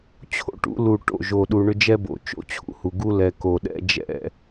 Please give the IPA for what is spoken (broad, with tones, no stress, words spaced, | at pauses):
t͡ɕʰo̰˦ʈṵ˦ lu˨ ʈo̰˦˨ʒo˨ɗu˨ɳʏ˦ d͡ʒɛ˦bo̰˨ t͡ʃo̰˦t͡ɕʰṵ˦hu˨ ɡu˦lɛ˨ ko˨ɗɛ̰˦ d͡ʒɛ̰˦˨